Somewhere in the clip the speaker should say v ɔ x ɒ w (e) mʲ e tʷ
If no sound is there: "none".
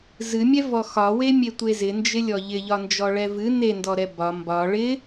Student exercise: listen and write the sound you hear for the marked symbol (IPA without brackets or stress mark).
e